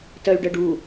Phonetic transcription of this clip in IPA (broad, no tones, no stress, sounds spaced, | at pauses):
t ɜ y̯ ɖ ɜ ɖ u